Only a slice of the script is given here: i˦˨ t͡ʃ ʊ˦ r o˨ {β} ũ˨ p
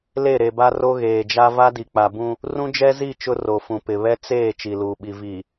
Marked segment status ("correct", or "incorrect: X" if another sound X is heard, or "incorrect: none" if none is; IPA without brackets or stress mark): incorrect: f